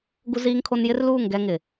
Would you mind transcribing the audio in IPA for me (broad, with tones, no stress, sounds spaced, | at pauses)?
ɡ u˦ z iː˦ ŋ kʰ o˦ n j ɪ˦ r l uː˦˨ ŋ ɡ ɛ˦ ŋ ɪ˨